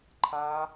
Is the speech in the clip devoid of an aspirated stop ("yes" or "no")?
no